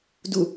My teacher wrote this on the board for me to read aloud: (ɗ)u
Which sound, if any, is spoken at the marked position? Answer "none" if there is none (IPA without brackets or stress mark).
d